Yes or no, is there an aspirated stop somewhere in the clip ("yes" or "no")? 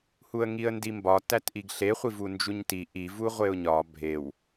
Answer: no